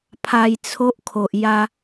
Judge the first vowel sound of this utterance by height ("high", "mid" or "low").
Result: low